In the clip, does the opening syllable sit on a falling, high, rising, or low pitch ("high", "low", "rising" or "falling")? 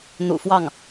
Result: low